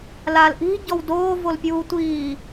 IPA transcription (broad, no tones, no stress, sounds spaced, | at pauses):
l a l ʔ i̤ ɟ ɔ w d oː v o l pʲ uː tʷ iː